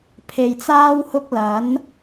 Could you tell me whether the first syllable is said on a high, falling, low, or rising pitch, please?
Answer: low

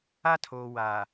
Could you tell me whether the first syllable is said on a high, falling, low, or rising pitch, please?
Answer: high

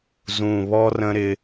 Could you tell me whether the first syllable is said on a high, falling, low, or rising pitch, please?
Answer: low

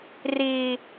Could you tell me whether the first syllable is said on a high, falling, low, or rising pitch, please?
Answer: high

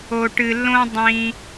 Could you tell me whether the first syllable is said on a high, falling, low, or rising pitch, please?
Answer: low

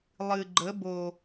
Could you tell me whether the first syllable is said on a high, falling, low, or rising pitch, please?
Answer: low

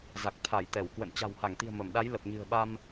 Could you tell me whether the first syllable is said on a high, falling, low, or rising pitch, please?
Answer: low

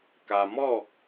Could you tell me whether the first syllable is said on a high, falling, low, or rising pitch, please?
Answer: low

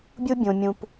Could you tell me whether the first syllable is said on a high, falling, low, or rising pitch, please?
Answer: high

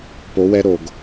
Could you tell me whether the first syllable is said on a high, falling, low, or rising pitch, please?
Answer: rising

